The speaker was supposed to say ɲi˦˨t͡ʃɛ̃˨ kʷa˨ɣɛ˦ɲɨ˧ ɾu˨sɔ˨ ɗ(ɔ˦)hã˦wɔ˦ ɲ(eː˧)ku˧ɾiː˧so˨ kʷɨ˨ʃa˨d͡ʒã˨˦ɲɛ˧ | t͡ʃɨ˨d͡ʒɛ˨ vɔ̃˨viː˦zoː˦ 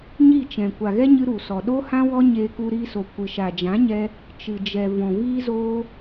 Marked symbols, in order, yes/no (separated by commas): no, yes